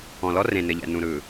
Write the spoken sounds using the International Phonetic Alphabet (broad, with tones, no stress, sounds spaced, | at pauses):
ɔ̃˨ l ɔ˦ r ẽ˨ n ɘ˨ ʎ ɛ̰˨ n ũ˨ ɾ ɯ˨